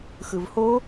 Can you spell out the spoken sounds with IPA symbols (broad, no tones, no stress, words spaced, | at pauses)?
xɯvho